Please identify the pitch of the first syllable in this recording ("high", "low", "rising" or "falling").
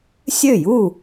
falling